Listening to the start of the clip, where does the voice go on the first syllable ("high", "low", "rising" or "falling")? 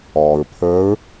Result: low